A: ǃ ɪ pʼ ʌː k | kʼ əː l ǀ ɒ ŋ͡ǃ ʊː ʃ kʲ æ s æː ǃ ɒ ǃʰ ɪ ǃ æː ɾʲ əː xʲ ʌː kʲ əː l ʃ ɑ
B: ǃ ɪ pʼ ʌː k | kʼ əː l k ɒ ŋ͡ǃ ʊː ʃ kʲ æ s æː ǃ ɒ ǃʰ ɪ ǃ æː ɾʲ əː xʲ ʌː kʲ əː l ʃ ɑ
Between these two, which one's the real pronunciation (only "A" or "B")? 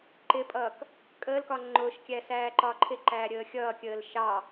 B